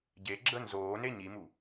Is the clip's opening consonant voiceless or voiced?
voiced